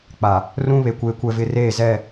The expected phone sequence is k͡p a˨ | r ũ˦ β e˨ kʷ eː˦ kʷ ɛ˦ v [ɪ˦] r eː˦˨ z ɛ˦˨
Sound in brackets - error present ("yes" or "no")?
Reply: no